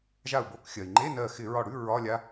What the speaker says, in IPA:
ʒ a˧˩ u̯ b o˧˩˧ k xʲ ɜ˩ i̯ ŋ͡ǃ e˧˥˧ n ɜ˧˩ x ɪ˧˩˧ ɹ ɒ˧˩ ɽ ʉ˧˥˧ ɹ ɒ˧˥˧ lʲ a˦˥

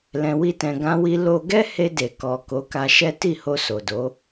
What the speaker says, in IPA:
l ɛ̃˧ w i˦ t ɛ̃˧ ɡ ã˧ w i˧ l o˦ ɡ ɛ˦ h e˧ d e˨ k ɔ˨ k o˨˦ k a˧ ʃ ɛ˦ t i˦˨ h o˧ s o˨ d o˨˦

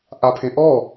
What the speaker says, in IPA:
ʔ a pʰ ẽ ʔ ɔ

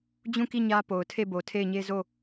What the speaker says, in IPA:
d͡ʑ ũ˦˨ k i˦˨ ɲ ä˦ p o˨ ʊ̯ tʰ e˦˨ b o˨ tʰ e˦˨ ɪ̯ ɲ e˦ z o˦˨

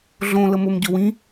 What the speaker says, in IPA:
ɮ õ l ə m o m ɟ ɵ w ĩ

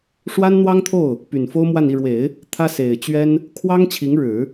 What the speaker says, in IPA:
ʂ w a˥ n n̪ w ɑ˥ ŋ t̪ʰ o˥˩ ʊ̯ | p y˨˩ n f o˥ ʊ̯ m w a˥˧ n i˥˩ ɻ w e˨˩˦ ɪ̯ | t̪ʰ ä˥ s e˨˩ ɪ̯ t͡ɕ ɥ ɛ˥ n | kʰ w ɑ˥ ŋ t͡ɕʰ i˧˥ ŋ ɻ ɻ̩˨˩˦

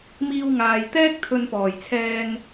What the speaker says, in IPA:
m iː˧ w ŋ aː˨ j t̪ ɛː˥ k̚ t̪ʰ ɵ˧ n p ɔː˨˩ j t͡sʰ ɛː˧ ŋ

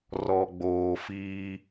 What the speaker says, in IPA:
r ɔ˨ ɡ͡b oː˨ f iː˦

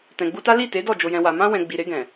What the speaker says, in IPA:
t ɛ̃˨ ɡ͡b u˧ t a˦ l i˦˨ t e˨˦ d ɔ˦˨ d͡ʒ o˧ j ɛ̃˧ w a˧ m ã˧ w ɛ̃˨ ɡ͡b i˨ ɾ e˧ ɡ ɛ̃˨

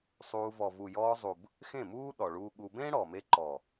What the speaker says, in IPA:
sˤ uː˧ v ɔ˨ v u˨ j ɔː˧ zˤ u˨ b | x ẽ˦˨ m uː˦ ɗ ɔ˨ ɭ uː˧ ɠ u˧ b ẽː˦ ɽ ɔː˨ m e˧ ǃ ɔː˨

